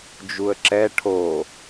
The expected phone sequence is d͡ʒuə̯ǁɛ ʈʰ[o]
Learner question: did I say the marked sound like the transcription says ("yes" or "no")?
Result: yes